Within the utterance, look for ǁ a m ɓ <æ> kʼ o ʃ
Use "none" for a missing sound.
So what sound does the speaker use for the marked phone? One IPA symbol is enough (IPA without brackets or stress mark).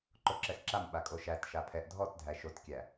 a